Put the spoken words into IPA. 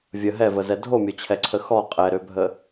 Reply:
vʲ ə ɦ ɛ v ə z ɛ dʱ o mʲ ɔ t͡ɕʰ ɛ ǀʰ ə x ɔ qʼ ɛ ɾ ø bʱ ə

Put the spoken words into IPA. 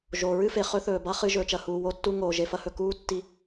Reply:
ʒ oː˨ ɹ ɨ˦ f e˨ χ ɵ˦ θ ɵː˨ b a˦ χ ɨ˦ ʒ ɵː˨ t͡ʃ ɐ˨ h uː˨ w o˦˨ tː u˦ ŋ oː˨ ʒ e˨ f ɐ˦ h ɵ˨ k uː˦ tː i˨

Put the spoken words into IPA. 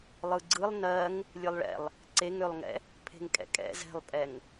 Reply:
lˠ ɯ ɡ͡ǀ ɯ lˠ n ɜ ŋ | lʲ ɯ lˠ ɭ ɛ̰ lˠ | ǀ e ŋ ø lˠ ŋ ɛ̰ | pʰ e̤ ŋ kʼ ɛ̰ kʼ ɛ̰ z ɛ̤ lˠ pʼ ɛ ŋ

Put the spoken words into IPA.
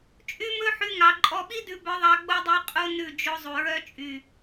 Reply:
t͡ʃʼ y˦ m ɵ˦ ħ y˦ ŋ ɑ˧ ǃʼ ɔ˧ ɓ i˦ d ʉ˧ b œ˧ ðˤ ɑ˧ ɡ͡b o˦ dˤ e˦ qʼ o˧ n ʉ˦˨ d͡ʒ o˧ zˤ u˨ ɹ œ˧ t͡ʃʼ y˨

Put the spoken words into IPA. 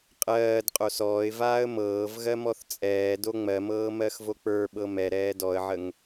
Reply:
qʼ ɜː d qʼ o s ɔː ɪ̯ v aː ə̯ m ɤː v ɣ ɜ m ɔ θ t͡sʼ ɛː d o ŋ͡m ɜ m ɤː m ɜ x v o k͡p ə˞ ɓ ɤ m ɛ ɾ ɛː d ɔ ə̯ ʕ ə ŋ

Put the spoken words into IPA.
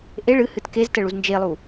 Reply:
ʔ e ɭ ɨ h ɨ t k e z t ə ɭ u z n d͡ʒ e lˠ u

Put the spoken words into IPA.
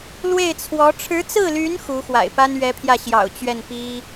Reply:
l w e˥˩ ɪ̯ t͡sʰ w ɔ˧˥ ʈ͡ʂʰ ɻ̩˧˥ t͡s ɹ̩˥˩ l y˧˥ n x u˧˥ x w a̰˨˩ ɪ̯ p a˥ n ɥ ɛ˧˥ pʰ j ä˥˩ ɕ j ɑ̰˨˩ ʊ̯ t͡ɕ ɥ ɛ˥˩ n p i˥

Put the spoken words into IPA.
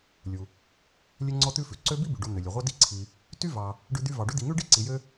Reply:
lʲ u˩ | lʲ ø˦ ŋ͡ǀ ɔ˦ t̪ ʉ˦ f ʉ˩ ǀ ø˦ b i˥ b y˩ ɖ u˨ n̪ ø˩ lʲ ø˩ ʁʷ ɑ˦ d i˦ ǀʰ i˨ | t y˥ v ɑ˨ | ɖ ʉ˦ d̪ y˦ v ɑ˨ ɖ ʉ˦ d̪ i˨ ŋ y˥ ɖ i˥ ǀ i˨ j ø˦

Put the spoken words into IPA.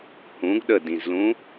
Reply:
h ũ ɡ ɗ ə d ĩ z l ũ

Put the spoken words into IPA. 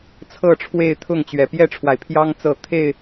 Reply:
t͡sʰ ɤ˥˨ ʈ͡ʂʰ w e˥˨ ɪ̯ t̪ʰ ʊ˥˨ ŋ t͡ɕ ɥ ɛ˨˩ p j ɛ˥˨ ʈ͡ʂʰ w a˩ ɪ̯ pʰ j ɑ˦ ŋ t͡s ɤ˥˨ t̪ʰ e˥˨ ɪ̯

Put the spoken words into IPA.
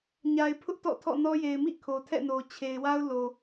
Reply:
ɲ a˨ ɪ̯ pʰ ʊ˦ ʔ t ɔ̰˦˨ tʰ ɔ̰˦˨ n ɔ˦ j e˨ ɪ̯ m ḭ˦˨ kʰ o˨ tʰ ɛ̰˦˨ n o˨ t͡ɕʰ e˨ ɪ̯ w a˦ ʊ̯ l o˨

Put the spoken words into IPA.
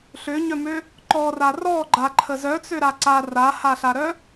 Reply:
ɬ ø ɲ œ m ø | ǃ ɔ r a r ɔ ɡ͡ǃ a ǃʰ ə z œ t͡s ø ɾ a ǀ a r a h a ɬ a ɾ œ

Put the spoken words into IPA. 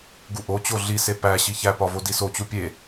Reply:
ɡ u ʔ o t͡ɕ o ɮ i s e p æ ɕ i ç æ p ɒ v o d i s o t͡ɕ u pʲ e

